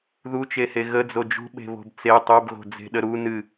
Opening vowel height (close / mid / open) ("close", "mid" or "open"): close